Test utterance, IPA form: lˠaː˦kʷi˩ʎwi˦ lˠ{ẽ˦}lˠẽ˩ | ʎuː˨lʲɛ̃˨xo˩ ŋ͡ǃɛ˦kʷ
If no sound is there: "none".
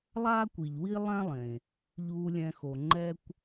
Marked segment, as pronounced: ɛ̃˦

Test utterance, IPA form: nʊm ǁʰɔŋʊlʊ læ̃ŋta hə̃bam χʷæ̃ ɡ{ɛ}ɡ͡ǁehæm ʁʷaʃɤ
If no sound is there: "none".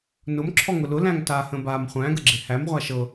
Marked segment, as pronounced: ə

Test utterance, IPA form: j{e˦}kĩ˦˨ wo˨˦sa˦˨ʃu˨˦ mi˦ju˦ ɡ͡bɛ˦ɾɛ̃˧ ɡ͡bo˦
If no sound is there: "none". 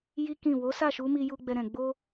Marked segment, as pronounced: i˦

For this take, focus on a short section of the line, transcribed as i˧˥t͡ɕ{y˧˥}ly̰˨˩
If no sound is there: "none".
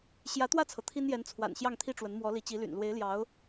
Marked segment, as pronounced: i˧˥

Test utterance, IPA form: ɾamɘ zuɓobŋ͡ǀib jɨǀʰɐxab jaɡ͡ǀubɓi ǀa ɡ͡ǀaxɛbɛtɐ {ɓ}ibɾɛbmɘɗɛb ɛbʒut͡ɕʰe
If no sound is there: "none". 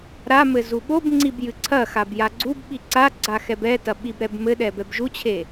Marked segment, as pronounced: ɓ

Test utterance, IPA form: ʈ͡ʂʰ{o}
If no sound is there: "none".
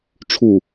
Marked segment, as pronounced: u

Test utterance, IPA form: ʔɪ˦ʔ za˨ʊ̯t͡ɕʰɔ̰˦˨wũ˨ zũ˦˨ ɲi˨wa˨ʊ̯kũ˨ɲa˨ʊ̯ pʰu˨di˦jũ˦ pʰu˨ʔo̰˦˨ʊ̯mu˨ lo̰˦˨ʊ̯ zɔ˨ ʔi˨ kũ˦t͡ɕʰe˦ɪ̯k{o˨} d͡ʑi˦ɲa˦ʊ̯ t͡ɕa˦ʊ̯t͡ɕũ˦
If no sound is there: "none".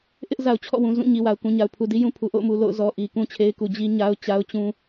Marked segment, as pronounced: u˨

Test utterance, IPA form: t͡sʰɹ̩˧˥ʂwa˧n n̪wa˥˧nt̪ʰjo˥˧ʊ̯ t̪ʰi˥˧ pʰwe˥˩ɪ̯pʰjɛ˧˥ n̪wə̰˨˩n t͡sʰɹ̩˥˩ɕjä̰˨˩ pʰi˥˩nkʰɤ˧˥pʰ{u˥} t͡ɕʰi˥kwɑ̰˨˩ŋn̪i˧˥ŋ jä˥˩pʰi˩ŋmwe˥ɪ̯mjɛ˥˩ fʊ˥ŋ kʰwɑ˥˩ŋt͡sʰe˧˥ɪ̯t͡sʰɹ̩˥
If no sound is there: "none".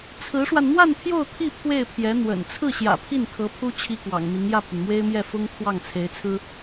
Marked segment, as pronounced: u˥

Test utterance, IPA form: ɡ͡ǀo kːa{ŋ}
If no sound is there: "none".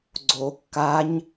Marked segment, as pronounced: ɲ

